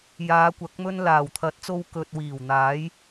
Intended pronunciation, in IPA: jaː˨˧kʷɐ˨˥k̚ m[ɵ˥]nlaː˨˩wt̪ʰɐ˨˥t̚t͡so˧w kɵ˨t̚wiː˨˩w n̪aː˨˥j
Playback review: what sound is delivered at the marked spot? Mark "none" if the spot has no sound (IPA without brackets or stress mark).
ɵ˧